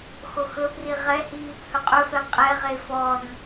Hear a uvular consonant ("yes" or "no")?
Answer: yes